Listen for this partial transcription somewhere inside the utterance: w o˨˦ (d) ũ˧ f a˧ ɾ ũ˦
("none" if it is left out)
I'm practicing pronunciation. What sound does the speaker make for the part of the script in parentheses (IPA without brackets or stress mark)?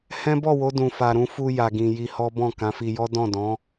d